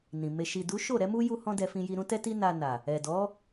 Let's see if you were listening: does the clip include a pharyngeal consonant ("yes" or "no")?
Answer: no